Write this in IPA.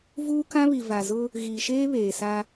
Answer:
vuː˦kã˦βi˨ va˨zʊ˦ | ɣiː˨ʃeː˦ βeː˨sa˦

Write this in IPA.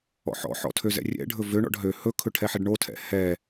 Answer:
ɔ̰ħɔ̰ħɔ̰ tʰøzɛ̰rʲɛ̰ɖʱɵ vøɳɔ̰ɖ ɦø hɵkʰɵ ʈʰɛħɛɖɳotʰɛ̰ hɛ

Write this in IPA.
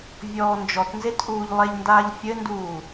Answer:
vʲɔːnd͡ʒɔtnzet ʔuːʎlˠeʎndaːʎ fʲɘnduː

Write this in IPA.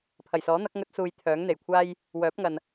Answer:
pʰɐ˨˩jsɔː˨˥n̪ɐ˨˥k̚ ŋɵ˧t̚ suː˨j t̪ʰœː˨˥ŋn̪e˨˩jkʷʰaː˥j | wœː˨˥p̚ŋɐ˨n

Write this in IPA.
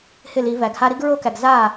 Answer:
hɪ˥˩li˨˩˦ væ˨˩˦ɡha˥ ɾi˥ɡɹo˥kæ˨˩ɡ za˥˩

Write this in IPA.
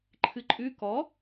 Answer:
ǃʰɨǃʼʉ kɔ

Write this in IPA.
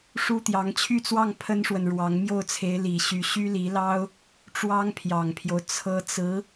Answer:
ʂu˥t̪jɑ˧˥ŋ t͡ɕʰy˥˧t͡swɑ˥˩ŋ pʰə˥nʂwə˨nɻwɑ˧˥ŋ mjo˥˩ʊ̯t͡sʰe˧˥ɪ̯li˨˩ɕy˧˥ ɕy˥li˧˥lɑ˥ʊ̯ | ʈ͡ʂwɑ˥ŋpʰjɑ˨˩ŋpʰjo˦ʊ̯ t͡sʰɤ˧˥t͡sɹ̩˧˥

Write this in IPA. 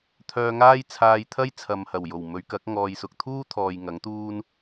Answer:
t̪ʰœː˧ŋaː˥j t͡sʰaː˧jt̪ʰɐ˥jt͡sʰɐ˨mhɐ˨˩w jo˨˩wmɵ˨˧ɥkɐ˨˥k̚ ŋɔː˨jsʊ˨k̚t̪ʰuː˥t̪ʰɔː˨j ŋɐ˨˥ŋt̪uː˥n

